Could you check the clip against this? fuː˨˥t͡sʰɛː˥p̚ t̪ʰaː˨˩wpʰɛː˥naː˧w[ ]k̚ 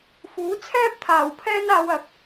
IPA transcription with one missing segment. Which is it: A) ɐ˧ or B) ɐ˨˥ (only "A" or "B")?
B